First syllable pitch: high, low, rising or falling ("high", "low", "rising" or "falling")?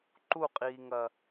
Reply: falling